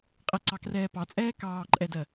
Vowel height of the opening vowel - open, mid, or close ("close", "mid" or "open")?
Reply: mid